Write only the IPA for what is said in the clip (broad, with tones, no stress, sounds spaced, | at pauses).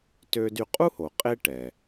t ø˧ d y˧ qʼ u˥ h o˩ qʼ e˥ ʈ ɛ˩